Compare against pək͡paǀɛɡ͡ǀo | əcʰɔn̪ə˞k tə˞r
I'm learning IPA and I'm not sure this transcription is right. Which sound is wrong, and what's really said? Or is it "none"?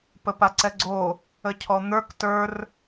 k͡p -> p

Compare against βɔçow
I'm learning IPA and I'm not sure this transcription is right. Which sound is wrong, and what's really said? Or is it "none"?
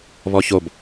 w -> b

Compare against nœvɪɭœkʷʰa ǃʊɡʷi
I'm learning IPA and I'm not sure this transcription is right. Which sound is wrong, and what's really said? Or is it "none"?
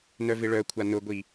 ǃ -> n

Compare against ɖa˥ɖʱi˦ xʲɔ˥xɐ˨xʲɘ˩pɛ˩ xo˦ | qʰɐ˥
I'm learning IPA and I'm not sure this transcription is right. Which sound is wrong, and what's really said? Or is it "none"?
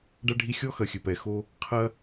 none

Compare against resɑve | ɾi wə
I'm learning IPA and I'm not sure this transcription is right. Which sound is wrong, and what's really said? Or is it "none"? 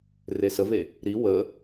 ɑ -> ə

